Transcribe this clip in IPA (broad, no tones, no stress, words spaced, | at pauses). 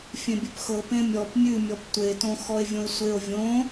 fʲẽbʲʉpxɤ pẽmʲɔp mʲʉmʲɔp tʷetõ xɔe̯vʲõe̯sʷeo̯ vʲõ